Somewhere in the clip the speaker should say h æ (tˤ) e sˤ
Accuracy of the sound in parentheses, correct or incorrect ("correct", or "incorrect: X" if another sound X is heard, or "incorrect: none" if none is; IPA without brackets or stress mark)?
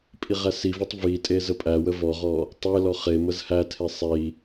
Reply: incorrect: tʰ